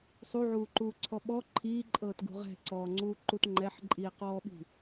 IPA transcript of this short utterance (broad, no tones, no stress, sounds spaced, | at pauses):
sˤ u ʕ uː ǃ uː ǀʰ ɔ ɓ ɔ ǃʰ iː ǃʼ ɤː t ɡ ṳ ʁ ɛ̤ ǀ ɔː ŋ͡ǀ uː ǃ u t ŋ͡ǃ ɛ ħ ǃʼ iː q ɔː ɓ i̤